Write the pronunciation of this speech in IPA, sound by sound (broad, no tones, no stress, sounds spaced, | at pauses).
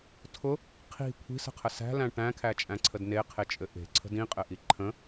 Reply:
tʰ ʊ | qʰ i̤ kʷʰ i̤ s ə̤ qʰ ə s æ̤ l æ̃ ʈ æ̃ kʰ æ t͡ʃʼ æ̃ ǀʰ ə d n e qʰ e t͡ʃʼ ɘ ʔ e̤ ǀʰ ə̤ d ĩ qʼ ɘ ʔ i ǃʰ ə̃